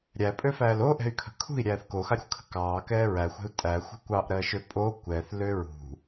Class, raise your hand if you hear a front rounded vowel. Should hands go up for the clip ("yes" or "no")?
yes